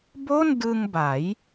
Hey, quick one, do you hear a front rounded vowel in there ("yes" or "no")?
no